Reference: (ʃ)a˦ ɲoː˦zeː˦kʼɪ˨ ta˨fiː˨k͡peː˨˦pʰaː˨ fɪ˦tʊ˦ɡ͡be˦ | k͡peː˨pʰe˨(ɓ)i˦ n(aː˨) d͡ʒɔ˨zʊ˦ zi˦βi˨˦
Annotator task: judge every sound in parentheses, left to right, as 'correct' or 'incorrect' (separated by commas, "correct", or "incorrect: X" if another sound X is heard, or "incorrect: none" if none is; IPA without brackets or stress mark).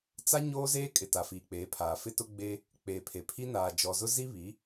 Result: incorrect: t͡s, incorrect: pʰ, correct